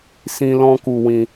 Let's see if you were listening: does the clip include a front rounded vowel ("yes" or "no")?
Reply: no